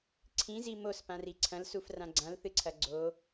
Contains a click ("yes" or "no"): yes